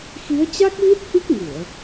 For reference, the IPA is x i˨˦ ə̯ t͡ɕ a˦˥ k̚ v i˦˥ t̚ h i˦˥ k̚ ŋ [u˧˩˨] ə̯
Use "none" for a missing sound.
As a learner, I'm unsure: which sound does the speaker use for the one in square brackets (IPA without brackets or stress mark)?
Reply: u˧˩˨